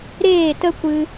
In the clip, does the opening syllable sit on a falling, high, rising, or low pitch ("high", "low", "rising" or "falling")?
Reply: falling